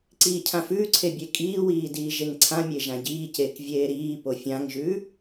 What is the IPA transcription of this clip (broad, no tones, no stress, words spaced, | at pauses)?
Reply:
ǀiːcʰãfʉːǀʰe bʲekʼiːwiː diːʒeŋǀʰãmʲe ʒãɟiːceːk vʲeːɾiːpo fʲãŋʒʉː